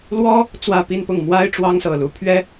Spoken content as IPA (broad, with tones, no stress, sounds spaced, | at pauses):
l w ɔ˥ | t͡s w ä˥˧ p i˥˧ n p ʊ˥˩ ŋ m w a˥ ɪ̯ ʈ͡ʂ w ɑ˥ ŋ s ɤ˨˩ l u˧˥ pʰ ɥ ɛ˥